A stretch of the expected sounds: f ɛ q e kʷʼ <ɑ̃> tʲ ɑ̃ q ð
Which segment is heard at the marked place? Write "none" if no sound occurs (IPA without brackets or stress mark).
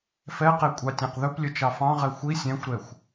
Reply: ɑ